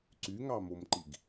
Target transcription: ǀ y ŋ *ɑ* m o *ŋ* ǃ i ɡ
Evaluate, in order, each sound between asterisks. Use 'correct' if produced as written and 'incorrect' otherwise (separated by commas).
correct, incorrect